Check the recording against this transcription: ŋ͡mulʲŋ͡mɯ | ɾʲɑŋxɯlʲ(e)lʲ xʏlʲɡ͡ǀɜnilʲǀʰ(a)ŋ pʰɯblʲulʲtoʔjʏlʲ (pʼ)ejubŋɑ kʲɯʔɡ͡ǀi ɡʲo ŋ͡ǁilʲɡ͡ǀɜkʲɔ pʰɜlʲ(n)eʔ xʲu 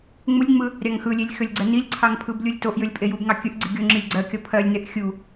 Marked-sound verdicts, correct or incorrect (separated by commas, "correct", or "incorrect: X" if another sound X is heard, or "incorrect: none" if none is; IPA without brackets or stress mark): correct, incorrect: ɑ, correct, correct